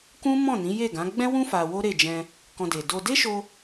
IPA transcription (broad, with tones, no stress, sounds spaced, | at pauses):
k ũ˦ m ɔ̃˦˨ n ĩ˨˦ j e˦˨ ɡ ã˨˦ ɡ͡b ɛ̃˦ w ũ˦ f a˧ w o˦ ɾ e˦˨ d͡ʒ ɛ̃˧ | k ɔ̃˧ d e˨ d o˧ d e˦ ʃ o˧